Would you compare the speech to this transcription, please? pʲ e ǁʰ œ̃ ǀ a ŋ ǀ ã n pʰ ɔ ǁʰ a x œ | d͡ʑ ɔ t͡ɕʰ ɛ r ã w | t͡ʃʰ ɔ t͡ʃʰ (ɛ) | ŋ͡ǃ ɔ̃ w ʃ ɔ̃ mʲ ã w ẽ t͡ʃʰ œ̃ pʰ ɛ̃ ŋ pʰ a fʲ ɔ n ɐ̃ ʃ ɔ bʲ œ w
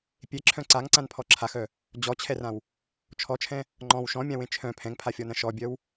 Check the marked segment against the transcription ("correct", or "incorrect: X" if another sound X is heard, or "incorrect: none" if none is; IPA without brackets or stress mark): incorrect: ɛ̃